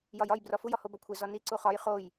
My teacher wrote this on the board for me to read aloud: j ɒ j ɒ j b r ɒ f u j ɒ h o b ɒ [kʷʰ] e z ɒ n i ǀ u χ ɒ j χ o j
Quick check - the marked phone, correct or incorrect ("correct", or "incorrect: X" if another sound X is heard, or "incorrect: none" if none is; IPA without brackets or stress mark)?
correct